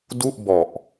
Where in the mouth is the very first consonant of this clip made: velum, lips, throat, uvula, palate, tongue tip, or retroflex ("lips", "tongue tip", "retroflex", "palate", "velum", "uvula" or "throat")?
tongue tip